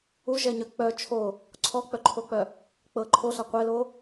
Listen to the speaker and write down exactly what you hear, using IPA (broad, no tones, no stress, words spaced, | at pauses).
uʒɛɲœ k͡pœ t͡ʃʰo | ǀʰɔk͡pœǃʰok͡pœ | k͡pɤ ǃʰoɬa qʷɛlo